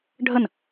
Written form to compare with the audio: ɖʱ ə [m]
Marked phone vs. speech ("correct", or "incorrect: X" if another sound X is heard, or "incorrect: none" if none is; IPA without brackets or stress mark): incorrect: n